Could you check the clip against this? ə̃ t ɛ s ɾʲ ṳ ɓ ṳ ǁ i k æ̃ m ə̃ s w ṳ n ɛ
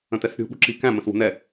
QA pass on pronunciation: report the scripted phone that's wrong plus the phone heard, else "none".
none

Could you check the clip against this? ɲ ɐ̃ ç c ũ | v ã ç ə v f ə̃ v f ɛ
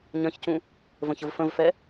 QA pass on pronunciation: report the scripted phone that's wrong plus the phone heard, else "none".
ã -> ə̃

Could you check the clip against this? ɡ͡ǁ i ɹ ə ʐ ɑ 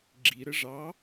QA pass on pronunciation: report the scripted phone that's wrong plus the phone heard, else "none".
ɹ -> ɾ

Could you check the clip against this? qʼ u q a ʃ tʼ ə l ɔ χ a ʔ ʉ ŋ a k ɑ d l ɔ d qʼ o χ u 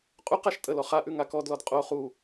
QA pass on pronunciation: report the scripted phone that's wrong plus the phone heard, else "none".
ɑ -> ɔ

